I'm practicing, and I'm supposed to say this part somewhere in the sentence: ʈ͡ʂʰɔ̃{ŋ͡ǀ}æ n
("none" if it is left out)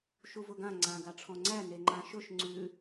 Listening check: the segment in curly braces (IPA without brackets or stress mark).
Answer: ŋ͡ǀ